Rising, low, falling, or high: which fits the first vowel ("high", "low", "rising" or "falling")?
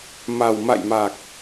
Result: low